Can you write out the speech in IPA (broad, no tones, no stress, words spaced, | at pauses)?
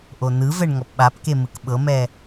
ʔonɯvɛɳ ŋɔpɓapke mɯkɓɤmɛ